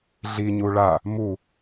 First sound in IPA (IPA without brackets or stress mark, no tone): ɮ